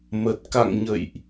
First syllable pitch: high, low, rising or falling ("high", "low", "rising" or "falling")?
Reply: low